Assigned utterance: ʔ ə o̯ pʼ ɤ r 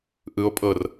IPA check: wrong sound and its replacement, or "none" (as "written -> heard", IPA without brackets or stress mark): ə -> ɯ